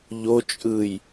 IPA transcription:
ʎ o t͡ʃʼ ɯː j

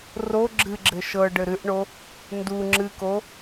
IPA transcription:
r o ɡ͡ǁ ɨ ɡ͡ǁ ɘ ʃ ɤ ɖ ɘ ɾ ɨ ʔ ɳ o | n d u ŋ͡ǁ ɨ k o

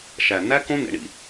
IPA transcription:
ʃ æ˨ n æ˦ k õ˦ n ḛ˧ ɳ ḭ˧

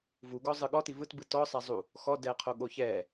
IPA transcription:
v u ɡ ɔ zˤ ɯ ɠ ɔ t i v ɯ t b ɯ t ɔ sˤ a zˤ u | x ɔ d ɛ qʰ o ɠ o ç ɛ

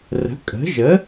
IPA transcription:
r ə̤˩˥ kʼ ə̤˩˥ ʒ ə˩˥

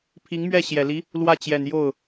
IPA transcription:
pʰ i˧˥ ŋ m ɥ ɛ˥˩ ɕ j ɛ˨˩ l i˧˥ | l w ä˥˩ t͡ɕ j ɛ˨˩ n j o˥˩ ʊ̯

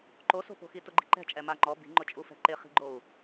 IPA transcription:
ǃ o s o̤ p o̤ x i t ʊ ɡ͡ǃ i̤ ǃ ɛ̤ t͡ʃʼ ɛ m a ŋ͡ǃ ɔ b i̤ ŋ͡ǃ ʊ t͡ʃʼ u f ɛ̤ ǃ ɪ χ i̤ ɡ͡ǃ o u̯

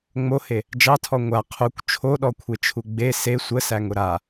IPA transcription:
ŋ͡m o h e | d͡ʒ ɑ tʰ ɔ ŋʷ a qʰ u kʷ t͡ʃʰ o ɗ ɔ kʷʰ e t͡ʃʰ u ɡ͡b e s e sʷ ə s æ ŋ ʊ ɾ a

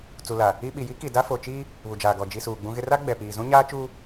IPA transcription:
t͡s u˨ l a˨ | i˦ ɓ i˨ j i˦ k i˨ d a˦ f o˨ t͡ʃ i˦ | β u˨ d͡ʒ aː˨ ɡ ɔ˨ d͡ʒ i˨ s uː˨ ɡ͡b ũ˦ ɣ ɪ˦ r a˦ ɡ͡b ɛ˨ p iː˨ z ũ˦ ɲ aː˦ t͡ʃ u˦

